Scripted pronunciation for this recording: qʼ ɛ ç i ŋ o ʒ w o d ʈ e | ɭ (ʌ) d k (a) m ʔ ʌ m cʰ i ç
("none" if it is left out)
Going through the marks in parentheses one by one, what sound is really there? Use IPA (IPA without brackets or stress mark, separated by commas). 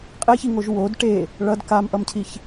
ʌ, a